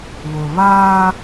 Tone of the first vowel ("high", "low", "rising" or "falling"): low